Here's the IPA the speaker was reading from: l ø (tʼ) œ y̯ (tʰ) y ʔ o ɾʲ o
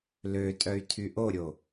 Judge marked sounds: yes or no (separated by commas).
yes, yes